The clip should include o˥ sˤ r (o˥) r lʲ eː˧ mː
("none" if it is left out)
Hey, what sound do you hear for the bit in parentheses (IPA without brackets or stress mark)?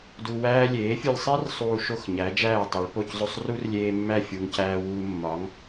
u˥